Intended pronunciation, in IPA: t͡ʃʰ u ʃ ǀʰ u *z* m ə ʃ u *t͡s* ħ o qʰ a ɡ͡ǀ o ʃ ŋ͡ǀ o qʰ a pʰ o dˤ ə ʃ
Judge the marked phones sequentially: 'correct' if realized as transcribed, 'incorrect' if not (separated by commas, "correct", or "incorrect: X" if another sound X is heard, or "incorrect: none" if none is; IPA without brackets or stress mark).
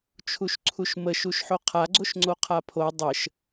incorrect: ʃ, incorrect: ʃ